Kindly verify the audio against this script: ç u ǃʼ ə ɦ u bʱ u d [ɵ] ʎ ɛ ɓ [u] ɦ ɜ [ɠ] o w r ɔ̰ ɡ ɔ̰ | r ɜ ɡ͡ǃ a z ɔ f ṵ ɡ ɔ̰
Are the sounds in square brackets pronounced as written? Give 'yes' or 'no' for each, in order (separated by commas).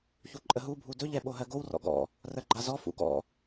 yes, no, no